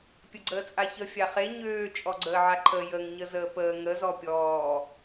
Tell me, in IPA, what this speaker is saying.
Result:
pʲ ə ɡ͡ǀ əː t͡sʼ a ç ə fʲ a χ e ɲ øː t͡ʃʼ ɔ ɡ͡ǀ əː ʕ a ǃʰ ə j ə ŋ ɲ ə z əː p əː ŋ ə z ɔ pʲ ɔː

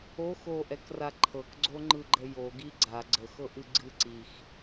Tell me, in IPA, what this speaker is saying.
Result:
o x o ʔ ɛ k r a ǃʰ ɤ k ɡ͡ǀ o ŋ͡ǃ ɯ ɡ͡ǃ ə j o ɡ i ɡ͡ǀ a ɡ͡ǀ ə x ɤ ʔ ɨ ɡ͡ǀ ɨ ǀ i x

